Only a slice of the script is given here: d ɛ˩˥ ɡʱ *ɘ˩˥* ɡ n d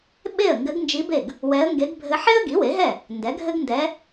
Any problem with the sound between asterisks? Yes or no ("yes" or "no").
yes